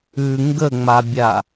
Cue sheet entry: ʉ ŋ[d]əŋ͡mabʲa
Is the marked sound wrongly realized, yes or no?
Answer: yes